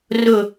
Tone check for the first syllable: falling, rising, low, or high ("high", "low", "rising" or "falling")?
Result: falling